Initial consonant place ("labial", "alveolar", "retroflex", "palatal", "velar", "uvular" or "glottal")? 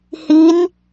glottal